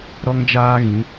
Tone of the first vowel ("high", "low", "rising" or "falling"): high